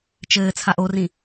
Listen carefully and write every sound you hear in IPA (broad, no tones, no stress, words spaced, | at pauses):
t͡ʃɘː t͡sʰaʔorĩ